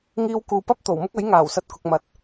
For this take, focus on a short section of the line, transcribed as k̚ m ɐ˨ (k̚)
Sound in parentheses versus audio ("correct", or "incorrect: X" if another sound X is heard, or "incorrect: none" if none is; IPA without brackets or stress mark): incorrect: t̚